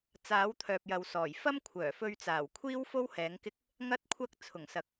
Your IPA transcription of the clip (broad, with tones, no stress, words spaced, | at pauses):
t͡saː˨˥wt̪ʰœː˨p̚jɐ˨wsɔː˨˩j fɐ˥mkʷʰœː˨˩fɵ˧ɥt͡saː˨˩w kʷʰiː˥w fo˥whɛː˨˥ŋkɪ˥k̚ | ŋɐ˥t̚kʷʰɐ˥k̚ t͡sʰʊ˨˩ŋsɐ˨k̚